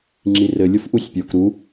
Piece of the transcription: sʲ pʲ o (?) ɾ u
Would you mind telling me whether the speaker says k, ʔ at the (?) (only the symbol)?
k